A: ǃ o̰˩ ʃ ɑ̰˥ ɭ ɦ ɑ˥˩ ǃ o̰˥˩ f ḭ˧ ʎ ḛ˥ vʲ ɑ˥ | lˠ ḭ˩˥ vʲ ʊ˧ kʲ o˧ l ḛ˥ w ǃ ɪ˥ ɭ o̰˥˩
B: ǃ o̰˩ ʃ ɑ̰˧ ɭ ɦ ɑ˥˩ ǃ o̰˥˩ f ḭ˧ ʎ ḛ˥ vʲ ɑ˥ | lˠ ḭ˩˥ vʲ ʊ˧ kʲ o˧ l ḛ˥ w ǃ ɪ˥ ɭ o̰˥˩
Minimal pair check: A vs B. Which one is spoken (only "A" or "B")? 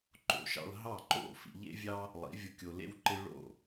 B